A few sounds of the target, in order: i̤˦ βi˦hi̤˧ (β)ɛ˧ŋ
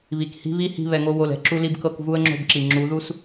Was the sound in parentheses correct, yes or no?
yes